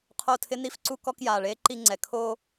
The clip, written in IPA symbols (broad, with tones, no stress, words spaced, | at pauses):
qʰo˦˨tʰɪ˦ ni˦fǀu˦ kɔ˦kjaː˨ɭeː˦ ǃi˦ŋ͡ǀɛ˨ kʰoː˦